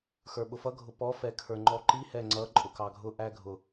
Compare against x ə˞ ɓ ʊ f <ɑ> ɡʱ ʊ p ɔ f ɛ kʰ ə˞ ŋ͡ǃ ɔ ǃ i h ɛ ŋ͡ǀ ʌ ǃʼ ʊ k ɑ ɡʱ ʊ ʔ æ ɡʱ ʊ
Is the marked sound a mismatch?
yes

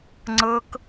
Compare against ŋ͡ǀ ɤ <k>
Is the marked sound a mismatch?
no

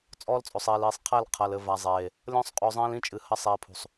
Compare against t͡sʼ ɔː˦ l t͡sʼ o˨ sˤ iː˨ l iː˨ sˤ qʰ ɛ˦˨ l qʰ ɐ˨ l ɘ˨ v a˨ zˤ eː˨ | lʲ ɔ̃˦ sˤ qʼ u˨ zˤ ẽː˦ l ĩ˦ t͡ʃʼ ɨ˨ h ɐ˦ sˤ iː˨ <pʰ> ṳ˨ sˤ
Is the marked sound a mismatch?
no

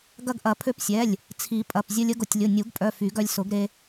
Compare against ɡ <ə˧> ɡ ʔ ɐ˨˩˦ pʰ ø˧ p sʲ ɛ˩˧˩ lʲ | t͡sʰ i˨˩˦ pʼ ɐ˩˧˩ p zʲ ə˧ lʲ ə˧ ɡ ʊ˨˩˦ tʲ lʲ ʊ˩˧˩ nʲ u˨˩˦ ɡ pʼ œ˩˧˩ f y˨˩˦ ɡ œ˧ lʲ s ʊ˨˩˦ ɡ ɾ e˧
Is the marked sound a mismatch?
yes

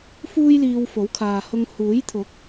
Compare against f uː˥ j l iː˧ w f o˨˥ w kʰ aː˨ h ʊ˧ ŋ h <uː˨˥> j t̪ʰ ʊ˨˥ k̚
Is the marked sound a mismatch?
no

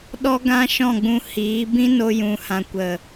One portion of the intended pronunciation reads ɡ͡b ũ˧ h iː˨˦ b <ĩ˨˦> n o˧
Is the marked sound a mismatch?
yes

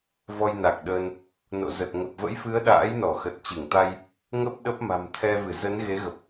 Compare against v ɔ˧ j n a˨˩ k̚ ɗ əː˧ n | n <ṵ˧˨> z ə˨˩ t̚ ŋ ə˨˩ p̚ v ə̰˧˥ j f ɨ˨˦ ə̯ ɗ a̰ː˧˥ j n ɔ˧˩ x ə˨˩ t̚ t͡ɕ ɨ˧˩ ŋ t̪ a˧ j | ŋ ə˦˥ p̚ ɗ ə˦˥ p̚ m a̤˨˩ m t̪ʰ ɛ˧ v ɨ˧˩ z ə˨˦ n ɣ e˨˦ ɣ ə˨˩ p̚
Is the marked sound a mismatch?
yes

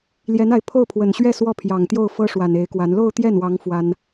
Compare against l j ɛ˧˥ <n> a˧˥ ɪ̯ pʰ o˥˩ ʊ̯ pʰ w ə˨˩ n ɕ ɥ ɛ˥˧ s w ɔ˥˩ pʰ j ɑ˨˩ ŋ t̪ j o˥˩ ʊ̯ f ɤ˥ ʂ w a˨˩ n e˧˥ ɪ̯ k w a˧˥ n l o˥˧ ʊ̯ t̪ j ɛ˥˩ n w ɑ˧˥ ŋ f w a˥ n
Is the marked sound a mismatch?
no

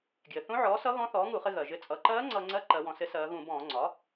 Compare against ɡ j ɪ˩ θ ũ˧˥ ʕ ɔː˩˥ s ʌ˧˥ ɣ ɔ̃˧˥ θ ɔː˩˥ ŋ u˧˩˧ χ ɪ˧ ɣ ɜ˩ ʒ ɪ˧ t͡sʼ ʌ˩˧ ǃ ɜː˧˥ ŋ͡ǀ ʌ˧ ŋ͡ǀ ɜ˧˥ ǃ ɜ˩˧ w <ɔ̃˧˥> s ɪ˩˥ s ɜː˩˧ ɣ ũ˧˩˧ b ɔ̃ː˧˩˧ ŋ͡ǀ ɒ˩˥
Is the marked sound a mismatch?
yes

